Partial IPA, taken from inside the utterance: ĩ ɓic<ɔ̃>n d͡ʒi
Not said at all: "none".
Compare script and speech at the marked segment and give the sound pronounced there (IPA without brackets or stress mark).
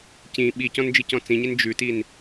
ɔ̃